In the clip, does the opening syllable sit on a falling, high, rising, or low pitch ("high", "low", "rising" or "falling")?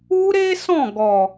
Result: high